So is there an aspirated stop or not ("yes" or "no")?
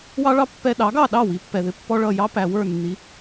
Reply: no